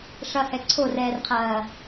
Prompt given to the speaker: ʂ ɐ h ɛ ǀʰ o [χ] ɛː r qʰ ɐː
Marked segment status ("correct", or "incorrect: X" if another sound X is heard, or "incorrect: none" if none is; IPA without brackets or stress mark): incorrect: r